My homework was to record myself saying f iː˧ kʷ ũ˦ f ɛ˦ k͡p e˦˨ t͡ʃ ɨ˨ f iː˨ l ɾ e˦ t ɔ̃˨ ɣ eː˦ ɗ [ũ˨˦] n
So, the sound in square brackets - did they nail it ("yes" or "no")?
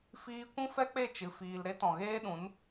yes